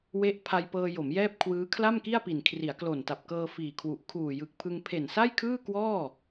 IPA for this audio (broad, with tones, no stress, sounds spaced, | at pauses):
w e˦˥ ʔ pʰ a˧ j p ɤː˧ j o˩˦ m j ɛː˥˩ p̚ kʰ w ɯː˦˥ kʰ l a˥˩ m k i˥˩ a̯ p i˨˩ n kʰ r i˩˦ a̯ k l o˨˩ n t a˨˩ p̚ k ɤː˧ f iː˨˩ kʰ w u˨˩ ʔ kʰ uː˨˩ j ɯ˨˩ k̚ pʰ ɯ˧ ŋ pʰ e˨˩ n s a˥˩ j kʰ ɯː˥˩ k w ɔː˥˩